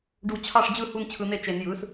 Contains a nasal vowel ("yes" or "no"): no